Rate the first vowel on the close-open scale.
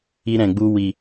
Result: close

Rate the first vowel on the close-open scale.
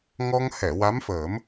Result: mid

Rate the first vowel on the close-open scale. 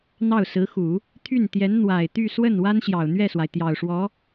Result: open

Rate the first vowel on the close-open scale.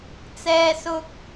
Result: mid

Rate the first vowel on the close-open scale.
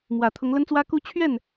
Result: open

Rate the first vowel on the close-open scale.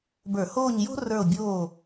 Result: mid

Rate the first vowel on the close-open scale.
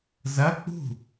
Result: open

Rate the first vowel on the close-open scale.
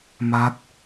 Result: open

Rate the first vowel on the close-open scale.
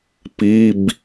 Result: close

